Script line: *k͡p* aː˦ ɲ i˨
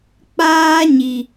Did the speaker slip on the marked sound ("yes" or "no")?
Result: no